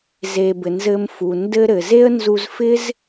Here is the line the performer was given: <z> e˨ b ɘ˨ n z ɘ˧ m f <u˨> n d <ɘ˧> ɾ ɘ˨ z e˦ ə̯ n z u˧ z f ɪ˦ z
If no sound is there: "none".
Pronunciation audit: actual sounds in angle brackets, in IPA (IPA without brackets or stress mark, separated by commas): z, u˨, ɘ˧